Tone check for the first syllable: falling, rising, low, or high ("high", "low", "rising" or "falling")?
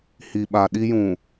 low